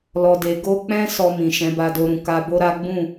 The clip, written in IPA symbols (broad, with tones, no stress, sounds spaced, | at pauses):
l ɔ˨ d e˨ ɡ o˧ k͡p ɛ̃˦ s ɔ˧ m ĩ˨ ʃ ɛ̃˨˦ b a˧ d o˧ ɾ ũ˨ k a˧ b o˦ ɾ a˦ ɡ͡b ũ˦˨